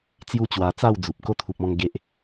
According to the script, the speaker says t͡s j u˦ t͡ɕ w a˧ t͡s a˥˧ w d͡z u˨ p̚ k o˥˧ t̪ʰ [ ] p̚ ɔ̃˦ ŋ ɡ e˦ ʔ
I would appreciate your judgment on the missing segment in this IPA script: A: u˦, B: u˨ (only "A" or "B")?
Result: B